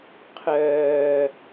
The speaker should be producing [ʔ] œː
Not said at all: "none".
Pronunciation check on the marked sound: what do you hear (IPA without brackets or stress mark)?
qʰ